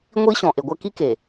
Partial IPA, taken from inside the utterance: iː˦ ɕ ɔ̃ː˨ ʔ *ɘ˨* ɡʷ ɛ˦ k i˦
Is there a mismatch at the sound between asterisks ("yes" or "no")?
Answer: yes